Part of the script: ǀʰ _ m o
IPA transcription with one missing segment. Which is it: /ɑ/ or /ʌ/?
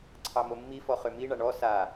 ɑ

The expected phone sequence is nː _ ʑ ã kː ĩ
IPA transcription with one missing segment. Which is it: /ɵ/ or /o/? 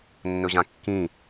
ɵ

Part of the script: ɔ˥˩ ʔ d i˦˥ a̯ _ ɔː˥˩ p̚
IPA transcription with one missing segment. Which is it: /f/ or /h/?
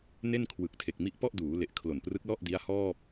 h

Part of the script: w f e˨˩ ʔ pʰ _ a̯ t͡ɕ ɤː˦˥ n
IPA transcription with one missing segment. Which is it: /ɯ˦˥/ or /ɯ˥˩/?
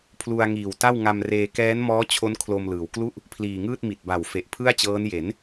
ɯ˥˩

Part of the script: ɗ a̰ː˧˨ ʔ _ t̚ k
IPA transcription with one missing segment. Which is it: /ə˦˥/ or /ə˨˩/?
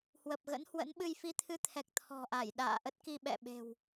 ə˦˥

